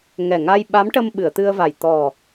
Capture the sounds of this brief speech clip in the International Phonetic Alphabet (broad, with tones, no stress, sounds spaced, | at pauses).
ŋ ɛ˨˩ ŋ a˧ j ɓ a˧˥ m ʈ ə˧ m ɓ ɨ˨˩˨ ə̯ t̪ ɨ˧ ə̯ v a˨˩ j t̪ ɔ˨˩